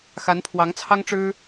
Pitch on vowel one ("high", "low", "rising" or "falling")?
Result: rising